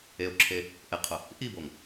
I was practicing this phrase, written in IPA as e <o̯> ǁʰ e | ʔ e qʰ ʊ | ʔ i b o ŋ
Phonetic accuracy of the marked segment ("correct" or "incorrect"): correct